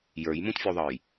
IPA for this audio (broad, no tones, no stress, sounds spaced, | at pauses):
j ə˞ j m ũ t fʲ u ðˤ ʌ j